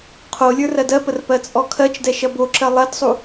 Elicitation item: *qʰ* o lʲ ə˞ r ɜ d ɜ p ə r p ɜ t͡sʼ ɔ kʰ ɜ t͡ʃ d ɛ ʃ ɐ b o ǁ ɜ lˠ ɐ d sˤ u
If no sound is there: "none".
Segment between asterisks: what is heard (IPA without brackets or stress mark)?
qʰ